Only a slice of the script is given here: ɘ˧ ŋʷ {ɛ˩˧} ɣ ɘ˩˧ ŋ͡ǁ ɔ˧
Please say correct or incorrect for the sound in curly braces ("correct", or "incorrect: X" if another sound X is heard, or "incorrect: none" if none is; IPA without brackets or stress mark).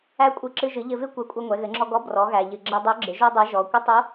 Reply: correct